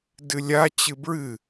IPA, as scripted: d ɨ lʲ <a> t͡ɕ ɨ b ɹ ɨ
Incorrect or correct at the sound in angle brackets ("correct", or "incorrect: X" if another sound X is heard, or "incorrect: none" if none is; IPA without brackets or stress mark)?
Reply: correct